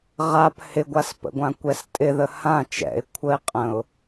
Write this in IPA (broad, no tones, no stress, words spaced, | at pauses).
ʁap hɪɡʷaspə̰ɡʷã kʷɛstʼɪðə hã t͡ʃɛ̰ɪ̯ kʷʰəɪ̯qʼə̃ʊ̯